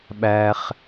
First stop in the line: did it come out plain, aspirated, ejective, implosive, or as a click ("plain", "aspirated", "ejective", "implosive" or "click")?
implosive